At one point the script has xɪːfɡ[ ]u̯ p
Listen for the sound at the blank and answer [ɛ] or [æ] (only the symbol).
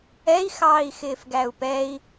æ